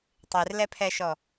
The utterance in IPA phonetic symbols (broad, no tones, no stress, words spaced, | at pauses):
tˤerlɛpʰɛʃɔ